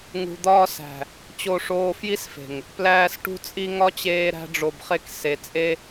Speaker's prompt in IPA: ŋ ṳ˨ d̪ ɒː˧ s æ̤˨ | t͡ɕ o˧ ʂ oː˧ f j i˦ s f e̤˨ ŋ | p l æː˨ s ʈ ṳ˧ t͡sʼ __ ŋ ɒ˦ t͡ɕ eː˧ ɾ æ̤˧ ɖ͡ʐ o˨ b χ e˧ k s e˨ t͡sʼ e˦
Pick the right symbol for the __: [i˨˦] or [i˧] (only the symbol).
i˧